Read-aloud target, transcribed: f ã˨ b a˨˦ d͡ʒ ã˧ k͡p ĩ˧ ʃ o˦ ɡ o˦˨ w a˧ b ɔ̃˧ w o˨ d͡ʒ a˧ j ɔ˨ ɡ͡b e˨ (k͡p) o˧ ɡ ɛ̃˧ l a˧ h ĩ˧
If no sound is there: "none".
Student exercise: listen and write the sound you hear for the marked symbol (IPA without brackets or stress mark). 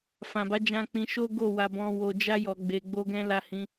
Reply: ɡ͡b